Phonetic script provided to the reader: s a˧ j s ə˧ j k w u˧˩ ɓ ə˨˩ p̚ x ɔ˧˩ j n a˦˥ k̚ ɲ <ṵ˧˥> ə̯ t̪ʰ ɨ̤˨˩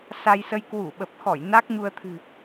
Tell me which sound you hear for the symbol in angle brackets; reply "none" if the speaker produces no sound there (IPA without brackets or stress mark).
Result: u˧